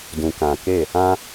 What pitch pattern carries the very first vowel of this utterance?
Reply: low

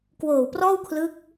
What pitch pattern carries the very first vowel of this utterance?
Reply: low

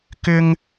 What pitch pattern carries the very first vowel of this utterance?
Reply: high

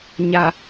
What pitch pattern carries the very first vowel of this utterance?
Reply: low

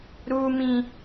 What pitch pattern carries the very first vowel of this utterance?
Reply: high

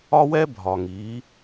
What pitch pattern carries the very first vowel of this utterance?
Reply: high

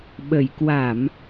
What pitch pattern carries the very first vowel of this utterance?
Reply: low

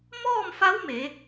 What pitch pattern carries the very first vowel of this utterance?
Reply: falling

